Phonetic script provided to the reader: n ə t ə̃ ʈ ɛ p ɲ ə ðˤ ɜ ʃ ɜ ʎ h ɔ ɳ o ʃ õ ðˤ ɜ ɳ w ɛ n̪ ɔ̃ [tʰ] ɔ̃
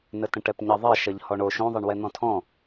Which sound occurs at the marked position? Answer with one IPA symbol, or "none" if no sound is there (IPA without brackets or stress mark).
tʰ